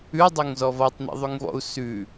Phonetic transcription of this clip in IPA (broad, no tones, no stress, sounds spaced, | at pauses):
ʉ dˤ o ŋ z ɔ v ɔ tˤ n̪ ḭ ðˤ ʉ ŋ v ɔ̰ u̯ s ʉ